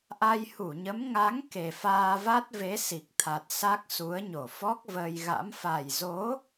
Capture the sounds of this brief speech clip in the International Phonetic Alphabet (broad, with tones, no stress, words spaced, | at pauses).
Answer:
ʔa˧jhu˧˩ɲə˨˦m ŋa˨˦ŋ ke˨˩faː˧va˦˥t̚ ve˨˦si˨˩k̚t̪ʰa˨˩t̚ sa˦˥k̚su˨˦ə̯ ɲo˧˩fɔ˦˥k̚vəː˧j ɣa̰˧˥m fa˨˩jzo˨˦